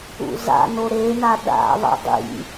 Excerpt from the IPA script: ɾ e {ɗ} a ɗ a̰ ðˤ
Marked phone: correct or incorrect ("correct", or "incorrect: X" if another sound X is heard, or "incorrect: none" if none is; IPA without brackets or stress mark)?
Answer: incorrect: n